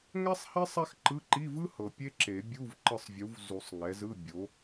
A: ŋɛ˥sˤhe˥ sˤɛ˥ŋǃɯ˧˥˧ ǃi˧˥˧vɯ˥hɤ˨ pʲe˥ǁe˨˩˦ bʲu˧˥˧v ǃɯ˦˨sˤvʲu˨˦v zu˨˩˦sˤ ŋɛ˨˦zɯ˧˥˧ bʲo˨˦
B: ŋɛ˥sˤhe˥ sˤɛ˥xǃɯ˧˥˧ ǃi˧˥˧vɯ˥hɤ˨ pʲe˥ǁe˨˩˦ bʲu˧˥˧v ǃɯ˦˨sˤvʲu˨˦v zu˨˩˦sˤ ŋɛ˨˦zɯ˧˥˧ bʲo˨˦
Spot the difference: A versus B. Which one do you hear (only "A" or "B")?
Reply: B